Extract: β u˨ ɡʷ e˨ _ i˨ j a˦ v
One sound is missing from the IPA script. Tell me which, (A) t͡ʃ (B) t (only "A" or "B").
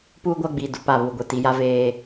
B